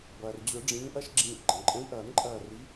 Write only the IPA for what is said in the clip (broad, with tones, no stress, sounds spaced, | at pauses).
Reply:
b ʌː˩ r d͡ʑ ʊ˨˩˦ ɖ͡ʐ ĩː˨˦ ʔ ʌ˦ ʃ ɡ͡ǁ ĩː˧˩ ʔ ɡ͡ǃ ə̃˩ ǃʼ ə̃˨˦ i̯ ʔ ʌː˨˩˦ n ǃʼ ʌː˧˩ r i˨˦